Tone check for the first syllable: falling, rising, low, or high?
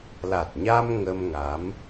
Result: low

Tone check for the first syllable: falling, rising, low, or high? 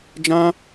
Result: high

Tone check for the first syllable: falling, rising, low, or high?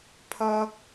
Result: high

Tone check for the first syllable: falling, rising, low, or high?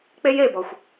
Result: high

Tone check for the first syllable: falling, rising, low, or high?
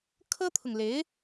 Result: high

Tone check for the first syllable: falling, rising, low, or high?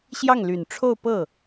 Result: falling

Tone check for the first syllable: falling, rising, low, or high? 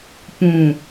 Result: low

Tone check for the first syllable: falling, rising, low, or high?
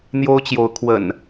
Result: high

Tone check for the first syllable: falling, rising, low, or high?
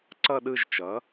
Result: falling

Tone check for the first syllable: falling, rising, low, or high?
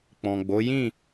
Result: low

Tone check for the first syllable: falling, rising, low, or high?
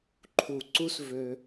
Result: low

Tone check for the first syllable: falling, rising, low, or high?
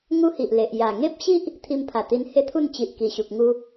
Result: high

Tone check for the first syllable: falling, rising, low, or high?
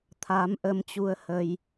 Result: rising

